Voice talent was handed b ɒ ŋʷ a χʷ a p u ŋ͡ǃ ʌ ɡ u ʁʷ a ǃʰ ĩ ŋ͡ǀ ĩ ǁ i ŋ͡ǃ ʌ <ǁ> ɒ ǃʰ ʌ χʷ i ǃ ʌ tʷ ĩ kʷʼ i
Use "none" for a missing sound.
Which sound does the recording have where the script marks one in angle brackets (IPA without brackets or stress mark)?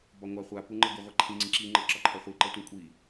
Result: ǁ